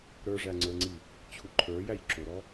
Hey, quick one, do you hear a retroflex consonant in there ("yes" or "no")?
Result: yes